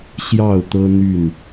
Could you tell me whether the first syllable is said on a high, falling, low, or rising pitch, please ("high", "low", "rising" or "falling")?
falling